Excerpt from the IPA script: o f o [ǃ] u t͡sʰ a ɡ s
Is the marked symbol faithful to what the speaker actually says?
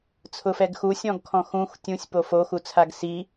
no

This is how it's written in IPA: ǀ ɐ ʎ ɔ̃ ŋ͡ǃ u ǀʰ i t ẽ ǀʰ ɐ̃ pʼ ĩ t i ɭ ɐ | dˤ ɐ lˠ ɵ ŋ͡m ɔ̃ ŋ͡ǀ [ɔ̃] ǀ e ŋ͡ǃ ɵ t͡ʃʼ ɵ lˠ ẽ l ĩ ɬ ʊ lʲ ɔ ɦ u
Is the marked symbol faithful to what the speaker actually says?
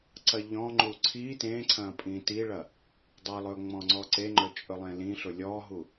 no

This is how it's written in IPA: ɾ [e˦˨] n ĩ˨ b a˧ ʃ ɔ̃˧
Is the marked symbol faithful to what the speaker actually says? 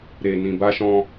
no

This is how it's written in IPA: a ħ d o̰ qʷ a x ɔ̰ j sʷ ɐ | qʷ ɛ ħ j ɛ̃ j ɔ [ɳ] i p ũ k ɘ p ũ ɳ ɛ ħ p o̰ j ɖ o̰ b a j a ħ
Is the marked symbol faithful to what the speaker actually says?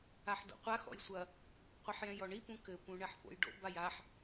yes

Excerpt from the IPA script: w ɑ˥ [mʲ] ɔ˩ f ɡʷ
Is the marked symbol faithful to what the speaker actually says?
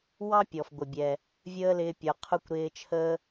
no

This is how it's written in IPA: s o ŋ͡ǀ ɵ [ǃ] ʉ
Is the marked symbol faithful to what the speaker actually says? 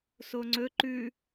yes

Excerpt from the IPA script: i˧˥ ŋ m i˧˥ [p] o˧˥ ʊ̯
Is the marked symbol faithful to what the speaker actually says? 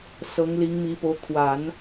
yes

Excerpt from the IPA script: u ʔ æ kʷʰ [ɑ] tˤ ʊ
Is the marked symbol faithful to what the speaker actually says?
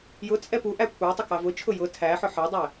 yes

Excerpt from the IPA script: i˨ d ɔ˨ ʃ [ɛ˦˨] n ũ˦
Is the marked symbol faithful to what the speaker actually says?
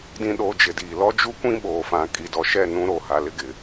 yes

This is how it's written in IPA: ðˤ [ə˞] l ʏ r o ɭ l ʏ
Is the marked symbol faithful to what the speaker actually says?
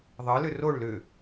no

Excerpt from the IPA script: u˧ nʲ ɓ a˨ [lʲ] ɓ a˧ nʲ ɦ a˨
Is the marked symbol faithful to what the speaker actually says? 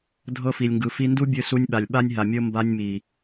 yes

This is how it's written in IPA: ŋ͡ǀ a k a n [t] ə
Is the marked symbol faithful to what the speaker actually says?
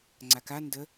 no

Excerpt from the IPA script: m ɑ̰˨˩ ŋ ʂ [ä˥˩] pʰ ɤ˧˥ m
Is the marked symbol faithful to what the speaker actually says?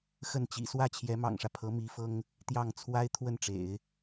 no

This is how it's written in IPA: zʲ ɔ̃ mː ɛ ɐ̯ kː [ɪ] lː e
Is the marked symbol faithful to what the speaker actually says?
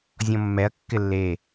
yes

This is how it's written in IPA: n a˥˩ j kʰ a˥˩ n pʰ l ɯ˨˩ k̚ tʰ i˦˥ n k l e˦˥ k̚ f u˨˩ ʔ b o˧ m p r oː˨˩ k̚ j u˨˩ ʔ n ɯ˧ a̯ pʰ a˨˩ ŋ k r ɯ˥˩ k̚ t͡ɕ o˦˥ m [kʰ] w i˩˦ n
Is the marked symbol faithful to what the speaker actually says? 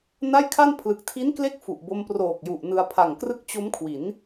yes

